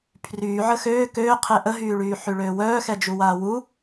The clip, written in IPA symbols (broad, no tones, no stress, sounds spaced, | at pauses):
pʰ r yː ʕ ə x øː k øː qʰ e ʔ ə ɦ yː ɭ yː ħ y ɭ øː w œː x ɛ d͡ʒ u w aː w u